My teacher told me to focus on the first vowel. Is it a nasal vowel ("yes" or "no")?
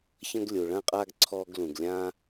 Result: yes